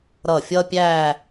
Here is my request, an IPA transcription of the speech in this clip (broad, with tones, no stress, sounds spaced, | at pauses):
ɾ ʌ˧˩ fʲ ʌ˥ pʲ æ˥˧